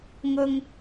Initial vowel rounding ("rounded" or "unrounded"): rounded